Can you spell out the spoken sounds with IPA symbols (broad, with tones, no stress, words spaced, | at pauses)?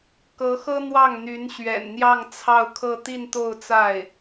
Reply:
kɤ˧˥xɤ˥ n̪wɑ˥˩ŋn̪y˧˥n ɕɥɛ̰˨˩nn̪jɑ˥˧ŋ t͡sʰɑ˥˧ʊ̯kʰɤ˥˧ t̪i˥˧nt̪o˥˧ʊ̯t͡sa˥˩ɪ̯